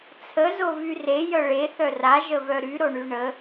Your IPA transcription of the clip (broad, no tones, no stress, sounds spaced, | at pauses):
t͡sʰ ə z o v y r e j œ ɭ e θ œ r a ʒ ə v œ ɾ y ɾ o ɳ y ɳ ə